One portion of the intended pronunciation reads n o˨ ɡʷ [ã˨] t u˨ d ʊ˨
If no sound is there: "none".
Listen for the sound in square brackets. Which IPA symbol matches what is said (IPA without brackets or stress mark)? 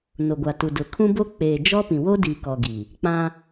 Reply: a˨